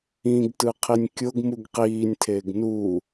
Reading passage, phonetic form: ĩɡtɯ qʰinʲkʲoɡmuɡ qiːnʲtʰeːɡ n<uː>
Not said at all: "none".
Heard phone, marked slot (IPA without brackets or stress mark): uː